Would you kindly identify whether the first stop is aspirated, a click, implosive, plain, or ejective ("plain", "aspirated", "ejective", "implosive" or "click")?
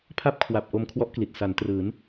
aspirated